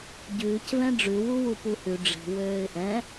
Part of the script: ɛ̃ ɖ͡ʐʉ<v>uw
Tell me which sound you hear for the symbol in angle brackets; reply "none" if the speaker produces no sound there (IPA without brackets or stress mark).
w